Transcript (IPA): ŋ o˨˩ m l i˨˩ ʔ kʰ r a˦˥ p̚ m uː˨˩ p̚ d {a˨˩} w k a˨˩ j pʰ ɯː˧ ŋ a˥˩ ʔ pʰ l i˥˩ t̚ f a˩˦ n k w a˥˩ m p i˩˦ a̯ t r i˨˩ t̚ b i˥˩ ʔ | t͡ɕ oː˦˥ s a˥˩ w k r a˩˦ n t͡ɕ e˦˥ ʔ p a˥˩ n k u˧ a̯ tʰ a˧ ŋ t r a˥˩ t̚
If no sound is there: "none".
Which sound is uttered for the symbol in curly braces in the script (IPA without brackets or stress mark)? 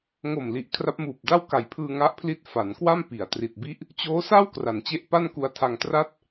a˥˩